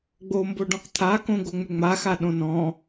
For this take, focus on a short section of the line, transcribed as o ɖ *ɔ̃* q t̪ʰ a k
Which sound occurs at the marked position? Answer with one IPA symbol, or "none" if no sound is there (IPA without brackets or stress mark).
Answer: ɔ̃